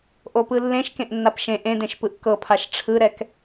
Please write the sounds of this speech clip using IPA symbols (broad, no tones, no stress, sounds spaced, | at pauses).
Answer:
ʔ o p ɯ lː ẽ ʃ k ẽ ʔ nː a p ʃ ẽ ʔ ẽ d ẽ ʃ p ɯ ʔ k ɤ pʰ a ʃ ʈ͡ʂʰ ɯ ɾ ɛ k